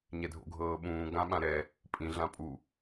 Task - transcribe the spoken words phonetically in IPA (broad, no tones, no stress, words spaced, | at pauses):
ɲɛdʱo̰ɡʱɤːɓũː ɡãɓãɾɛ | pʼĩ ɮãpʼu